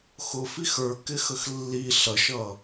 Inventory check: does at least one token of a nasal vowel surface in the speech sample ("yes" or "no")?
no